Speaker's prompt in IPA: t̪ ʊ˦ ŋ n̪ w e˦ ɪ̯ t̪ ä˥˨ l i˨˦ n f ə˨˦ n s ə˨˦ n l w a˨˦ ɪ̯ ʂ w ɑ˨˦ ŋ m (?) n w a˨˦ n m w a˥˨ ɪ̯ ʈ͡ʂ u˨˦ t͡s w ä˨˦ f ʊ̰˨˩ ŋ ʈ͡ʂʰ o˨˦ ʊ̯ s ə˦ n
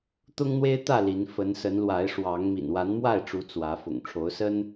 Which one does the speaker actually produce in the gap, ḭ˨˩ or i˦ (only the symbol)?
ḭ˨˩